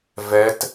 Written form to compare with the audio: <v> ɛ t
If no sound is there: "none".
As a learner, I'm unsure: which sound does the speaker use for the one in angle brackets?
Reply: v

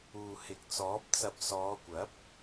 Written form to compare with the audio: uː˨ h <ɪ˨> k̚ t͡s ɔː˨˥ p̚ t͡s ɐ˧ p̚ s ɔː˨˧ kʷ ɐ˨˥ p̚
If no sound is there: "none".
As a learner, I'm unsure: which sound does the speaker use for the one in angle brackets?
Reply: ɪ˨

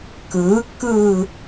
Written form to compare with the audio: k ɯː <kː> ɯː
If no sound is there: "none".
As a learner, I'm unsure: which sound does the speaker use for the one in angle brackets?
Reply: kː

